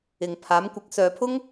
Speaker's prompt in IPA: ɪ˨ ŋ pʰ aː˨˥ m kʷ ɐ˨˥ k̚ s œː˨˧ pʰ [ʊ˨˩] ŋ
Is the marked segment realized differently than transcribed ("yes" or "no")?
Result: yes